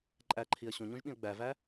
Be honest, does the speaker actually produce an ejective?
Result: yes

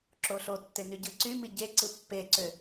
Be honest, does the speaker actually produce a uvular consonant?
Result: no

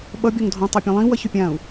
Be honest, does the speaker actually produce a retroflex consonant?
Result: no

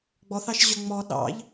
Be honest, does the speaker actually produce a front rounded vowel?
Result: yes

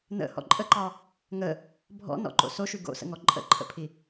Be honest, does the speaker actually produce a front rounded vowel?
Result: no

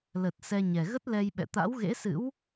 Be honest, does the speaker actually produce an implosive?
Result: yes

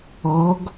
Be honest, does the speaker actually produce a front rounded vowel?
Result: no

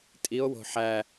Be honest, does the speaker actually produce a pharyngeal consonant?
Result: yes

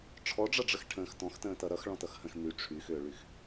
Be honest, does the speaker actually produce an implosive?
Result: no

